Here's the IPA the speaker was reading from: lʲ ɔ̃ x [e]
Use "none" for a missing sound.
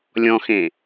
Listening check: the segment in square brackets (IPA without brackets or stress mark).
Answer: ẽ